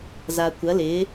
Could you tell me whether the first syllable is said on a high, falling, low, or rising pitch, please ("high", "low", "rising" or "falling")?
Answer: low